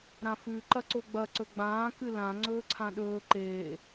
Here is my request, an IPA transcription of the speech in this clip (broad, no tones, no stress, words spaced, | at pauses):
ɾãfʉ ǃɐǀoɡ͡bɐ ǀɵɡ͡bãː kɨlã ŋ͡ǀɵːǀʰãɗɵː ǃeː